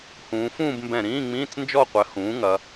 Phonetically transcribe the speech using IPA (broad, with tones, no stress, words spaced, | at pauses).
hũː˩˧fũː˥˧bmbɛ̃˧˩ ɾĩː˧˥˧ŋ͡mĩː˧˥˧t͡snd͡ʒɔ˥˧qʷɘ˩˥ hũː˩˥ŋɐ˩˧